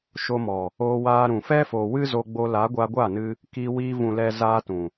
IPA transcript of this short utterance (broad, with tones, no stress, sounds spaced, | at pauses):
ʃ o˧ m ɔ˨ | oː˧ w aː˧ ɾ ũ˨ f ɛ˦ f o˨ w ɨ˦ z o˧ ɡ͡b o˧ l a˨˦ ɡʷ a˧ ɡʷ a˦˨ n ɨ˧ | k iː˧ w iː˧ v ũ˨ l ɛ˨ z aː˦ t ũ˨